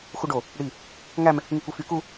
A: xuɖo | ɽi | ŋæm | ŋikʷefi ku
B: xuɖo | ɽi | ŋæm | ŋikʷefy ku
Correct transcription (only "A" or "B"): B